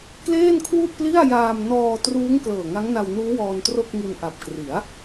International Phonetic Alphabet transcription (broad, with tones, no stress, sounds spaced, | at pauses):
k l eː˥˩ n kʰ w u˥˩ ʔ p l i˥˩ a̯ j aː˧ m n ɔː˧ t r uː˦˥ ŋ k l ɤː˨˩ ŋ a˦˥ ŋ n a˧ w n uː˦˥ w ɔː˧ n t r o˥˩ k̚ ŋ i˧ n ʔ a˨˩ p̚ k r i˩˦ a̯